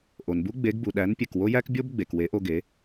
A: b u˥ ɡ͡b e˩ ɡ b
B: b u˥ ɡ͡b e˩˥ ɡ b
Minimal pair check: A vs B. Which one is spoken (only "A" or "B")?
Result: B